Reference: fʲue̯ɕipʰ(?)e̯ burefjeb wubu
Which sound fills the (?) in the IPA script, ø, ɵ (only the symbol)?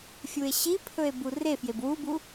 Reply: ɵ